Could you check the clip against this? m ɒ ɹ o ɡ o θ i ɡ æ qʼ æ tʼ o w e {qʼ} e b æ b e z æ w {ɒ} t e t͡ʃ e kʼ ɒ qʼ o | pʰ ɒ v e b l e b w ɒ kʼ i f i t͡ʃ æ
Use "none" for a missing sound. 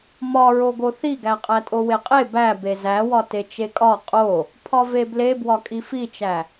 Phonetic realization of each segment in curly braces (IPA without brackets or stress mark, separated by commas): qʼ, ɒ